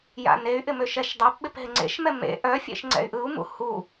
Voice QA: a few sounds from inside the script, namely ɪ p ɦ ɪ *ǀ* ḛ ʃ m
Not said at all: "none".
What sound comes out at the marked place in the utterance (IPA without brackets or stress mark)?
ŋ͡ǀ